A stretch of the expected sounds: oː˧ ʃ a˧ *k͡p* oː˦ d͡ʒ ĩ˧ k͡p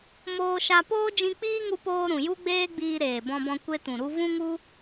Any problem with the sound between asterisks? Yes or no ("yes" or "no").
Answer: yes